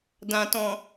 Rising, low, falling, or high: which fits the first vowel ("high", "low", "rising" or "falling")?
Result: low